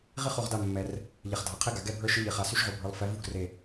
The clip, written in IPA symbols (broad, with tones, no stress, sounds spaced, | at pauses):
ʁ i˥ χ o˦˨ ʁ d a˦˨ mː ɛ˨ r | ʎ ɛ˨ χ dʱ a˨ qʰ e˥ ɡ a˨ ɡ ɛ˦˨ bʱ ə˞˦˨ ʃ ɨ˥ ʎ i˨˥ χ a˨˥ s y˥ ʃ ʁ o˨˥ bʱ ə˞˨˥ lˠ f ɛ˨˥ v u˥ ɡ r e˦˨